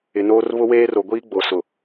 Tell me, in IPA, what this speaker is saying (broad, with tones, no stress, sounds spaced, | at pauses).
ɪ˨ n oː˦ r β ʊ˦ w eː˦ r o˨ ɡʷ iː˦ ɡ͡b o˨ s ʊ˨